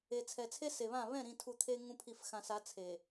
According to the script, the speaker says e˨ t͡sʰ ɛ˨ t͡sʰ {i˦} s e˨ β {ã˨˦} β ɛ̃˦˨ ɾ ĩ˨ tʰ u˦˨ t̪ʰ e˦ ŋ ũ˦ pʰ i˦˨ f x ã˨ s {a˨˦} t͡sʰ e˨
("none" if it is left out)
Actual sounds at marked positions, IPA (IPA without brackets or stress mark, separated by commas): e˦, ã˦˨, a˨˦